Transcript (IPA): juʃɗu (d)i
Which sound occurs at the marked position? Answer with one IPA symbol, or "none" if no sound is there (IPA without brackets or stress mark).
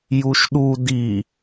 d